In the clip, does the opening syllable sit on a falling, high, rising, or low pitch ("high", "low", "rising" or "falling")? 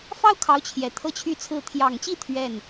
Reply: high